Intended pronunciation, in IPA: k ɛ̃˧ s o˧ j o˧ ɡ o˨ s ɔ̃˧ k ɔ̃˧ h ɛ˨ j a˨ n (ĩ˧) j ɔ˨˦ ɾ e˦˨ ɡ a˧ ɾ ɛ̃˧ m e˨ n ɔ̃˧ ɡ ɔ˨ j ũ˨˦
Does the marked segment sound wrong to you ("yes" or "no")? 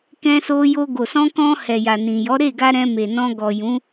yes